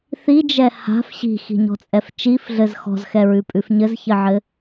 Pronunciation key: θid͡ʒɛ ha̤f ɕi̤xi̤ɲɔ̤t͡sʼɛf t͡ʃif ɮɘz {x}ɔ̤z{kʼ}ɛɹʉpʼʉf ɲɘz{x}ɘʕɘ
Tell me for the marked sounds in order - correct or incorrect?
correct, incorrect, incorrect

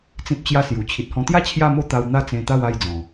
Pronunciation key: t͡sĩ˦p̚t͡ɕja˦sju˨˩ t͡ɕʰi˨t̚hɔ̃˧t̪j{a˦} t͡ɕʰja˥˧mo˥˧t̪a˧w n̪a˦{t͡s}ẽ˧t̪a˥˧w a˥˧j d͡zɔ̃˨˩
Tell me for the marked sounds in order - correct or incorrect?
correct, correct

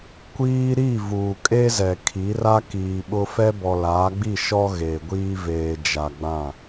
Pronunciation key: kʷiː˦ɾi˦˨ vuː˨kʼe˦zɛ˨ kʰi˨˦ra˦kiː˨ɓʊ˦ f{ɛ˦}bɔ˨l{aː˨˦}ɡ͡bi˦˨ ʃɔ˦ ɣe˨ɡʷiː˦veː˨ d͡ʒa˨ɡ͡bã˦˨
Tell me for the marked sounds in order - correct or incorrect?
correct, correct

